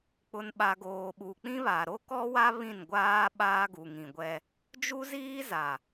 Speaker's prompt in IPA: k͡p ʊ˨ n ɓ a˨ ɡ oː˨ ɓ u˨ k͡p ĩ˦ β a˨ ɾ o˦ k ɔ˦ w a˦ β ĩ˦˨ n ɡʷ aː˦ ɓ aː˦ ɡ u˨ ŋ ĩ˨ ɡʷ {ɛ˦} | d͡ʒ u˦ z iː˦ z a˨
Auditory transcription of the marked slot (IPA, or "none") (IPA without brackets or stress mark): ɛ˦